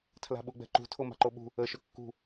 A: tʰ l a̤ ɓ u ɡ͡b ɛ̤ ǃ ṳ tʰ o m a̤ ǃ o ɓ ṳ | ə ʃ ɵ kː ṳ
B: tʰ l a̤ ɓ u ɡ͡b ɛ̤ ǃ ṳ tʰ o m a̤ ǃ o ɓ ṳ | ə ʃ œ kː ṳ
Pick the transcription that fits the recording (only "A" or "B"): A